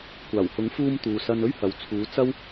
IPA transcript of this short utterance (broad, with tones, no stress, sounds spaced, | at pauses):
kʷ aː˨˩ w h ʊ˨˥ ŋ f uː˧ m t̪ uː˨ s ɐ˧ n ɵ˥ ɥ h ɐ˨ w t͡sʰ uː˨˧ t͡s ɐ˥ w